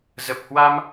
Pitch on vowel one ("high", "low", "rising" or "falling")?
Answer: low